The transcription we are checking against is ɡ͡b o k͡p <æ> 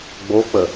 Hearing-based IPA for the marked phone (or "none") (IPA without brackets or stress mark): ə